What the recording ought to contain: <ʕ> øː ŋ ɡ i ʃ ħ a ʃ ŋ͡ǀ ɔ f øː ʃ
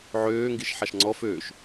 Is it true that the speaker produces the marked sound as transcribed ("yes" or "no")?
yes